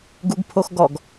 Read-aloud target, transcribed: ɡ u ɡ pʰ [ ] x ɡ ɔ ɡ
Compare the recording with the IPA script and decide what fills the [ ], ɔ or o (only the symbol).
o